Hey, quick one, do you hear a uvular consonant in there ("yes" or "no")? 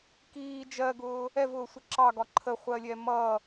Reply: yes